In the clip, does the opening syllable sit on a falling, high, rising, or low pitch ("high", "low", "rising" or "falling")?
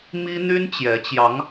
high